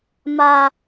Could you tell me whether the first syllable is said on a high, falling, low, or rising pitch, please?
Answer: high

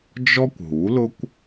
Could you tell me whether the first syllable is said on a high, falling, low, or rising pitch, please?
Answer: high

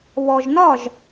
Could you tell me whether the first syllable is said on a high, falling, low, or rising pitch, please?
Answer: low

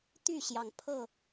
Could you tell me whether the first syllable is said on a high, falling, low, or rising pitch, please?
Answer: falling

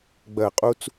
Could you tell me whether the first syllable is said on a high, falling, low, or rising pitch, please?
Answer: falling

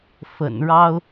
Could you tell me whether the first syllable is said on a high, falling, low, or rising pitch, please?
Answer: low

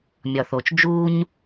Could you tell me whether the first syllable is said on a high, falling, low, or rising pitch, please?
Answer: low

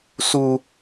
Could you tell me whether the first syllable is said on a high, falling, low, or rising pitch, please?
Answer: high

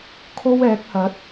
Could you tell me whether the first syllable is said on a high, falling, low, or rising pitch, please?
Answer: high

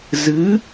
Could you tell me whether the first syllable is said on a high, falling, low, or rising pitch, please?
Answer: rising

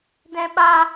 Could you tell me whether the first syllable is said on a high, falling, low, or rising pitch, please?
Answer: high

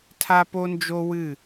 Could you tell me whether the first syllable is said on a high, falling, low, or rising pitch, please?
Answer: high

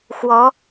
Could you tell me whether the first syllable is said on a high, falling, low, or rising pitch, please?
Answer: rising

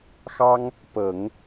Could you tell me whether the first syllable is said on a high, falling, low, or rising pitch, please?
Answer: high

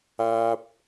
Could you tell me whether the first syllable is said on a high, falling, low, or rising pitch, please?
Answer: low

